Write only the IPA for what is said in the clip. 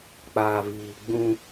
k͡paː˨viː˨ ɡ͡bũ˦

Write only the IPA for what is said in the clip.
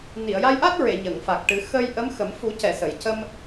ni˨˩˨ə̯ja˧jʔa˦˥t̚ ɹe˨˩˨ ɲə˨˩˨ŋfa˨˩k̚ʈɨ˨˩˦ xə˧jʔə˧˥mxə˨˩˦m fu˨˩˦cɛ˨˩˨ sə˨˩˨jcə˧m

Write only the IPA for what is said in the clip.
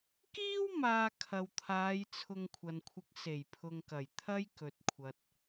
kiː˥w maː˧kʰɐ˨wt̪ʰaː˨˧j t͡sʰʊ˧ŋkʷʰɐ˨nkʷʰɪ˧k̚ se˨˩jpʰʊ˨ŋ kɐ˨˩jt̪ʰɐ˥j kɵ˨t̚kʷʰɐ˨t̚

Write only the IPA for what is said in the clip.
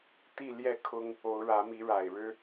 t̪i˥˨ljɛ˥˨kʰʊ˦ŋ | o˨˦ʊ̯ɻä˨˦mi˨˦ɻa˨˩ɪ̯ ɻɻ̩˦

